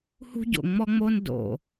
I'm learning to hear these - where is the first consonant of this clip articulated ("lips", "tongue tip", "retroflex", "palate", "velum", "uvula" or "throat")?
throat